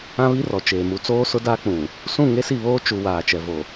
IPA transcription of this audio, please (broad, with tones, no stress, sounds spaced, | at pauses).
ã˦ β i˦ r ɔ˨ t͡ʃ eː˨ m u˨ t͡s oː˦ s ʊ˦ d aː˦ k͡p ũ˨ | s ũ˦˨ ŋ e˦ s i˦˨ β oː˦ t͡ʃ u˨ w aː˨ t͡ʃ ɛ˨ v o˨